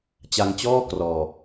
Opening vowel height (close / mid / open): open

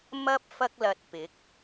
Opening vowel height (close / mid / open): open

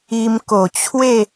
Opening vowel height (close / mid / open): close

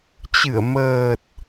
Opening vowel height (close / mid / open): close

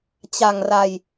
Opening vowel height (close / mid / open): open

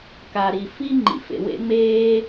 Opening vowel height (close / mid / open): open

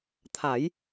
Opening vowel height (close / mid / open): open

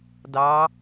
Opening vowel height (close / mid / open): open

